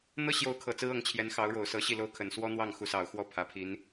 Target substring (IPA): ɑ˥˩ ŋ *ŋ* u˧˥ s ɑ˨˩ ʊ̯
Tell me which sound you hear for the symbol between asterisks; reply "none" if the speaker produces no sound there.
x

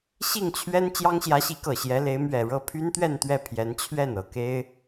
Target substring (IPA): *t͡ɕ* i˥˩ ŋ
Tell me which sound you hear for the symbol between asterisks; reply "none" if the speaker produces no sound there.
ɕ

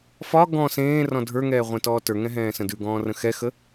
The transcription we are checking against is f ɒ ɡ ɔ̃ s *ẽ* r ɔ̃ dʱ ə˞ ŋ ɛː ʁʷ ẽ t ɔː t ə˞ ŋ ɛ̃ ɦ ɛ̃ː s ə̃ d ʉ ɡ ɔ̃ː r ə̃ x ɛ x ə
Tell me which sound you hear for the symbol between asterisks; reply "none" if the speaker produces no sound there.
ẽː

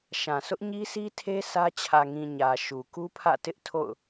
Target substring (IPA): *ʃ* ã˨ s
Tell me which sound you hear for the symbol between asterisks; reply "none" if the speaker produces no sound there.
ʃ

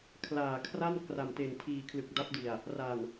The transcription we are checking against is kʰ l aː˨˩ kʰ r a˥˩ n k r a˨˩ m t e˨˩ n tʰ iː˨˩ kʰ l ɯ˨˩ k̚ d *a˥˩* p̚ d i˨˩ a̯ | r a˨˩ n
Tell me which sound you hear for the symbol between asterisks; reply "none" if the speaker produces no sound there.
a˦˥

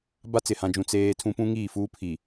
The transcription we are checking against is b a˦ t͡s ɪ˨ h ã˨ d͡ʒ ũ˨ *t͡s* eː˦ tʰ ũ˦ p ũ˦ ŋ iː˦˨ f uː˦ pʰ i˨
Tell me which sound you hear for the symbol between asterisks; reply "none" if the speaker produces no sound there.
t͡s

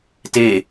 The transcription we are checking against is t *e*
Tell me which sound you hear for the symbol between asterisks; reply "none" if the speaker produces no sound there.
e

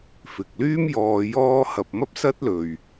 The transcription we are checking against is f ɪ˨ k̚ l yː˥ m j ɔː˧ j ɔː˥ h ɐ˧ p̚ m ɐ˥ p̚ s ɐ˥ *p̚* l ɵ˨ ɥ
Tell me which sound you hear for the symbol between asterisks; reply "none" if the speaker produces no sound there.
t̚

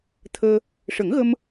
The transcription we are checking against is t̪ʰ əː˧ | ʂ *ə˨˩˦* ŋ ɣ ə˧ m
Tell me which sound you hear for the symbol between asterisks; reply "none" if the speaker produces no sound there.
ə˨˩˦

